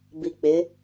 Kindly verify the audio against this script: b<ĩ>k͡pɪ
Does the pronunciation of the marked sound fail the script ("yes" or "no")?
yes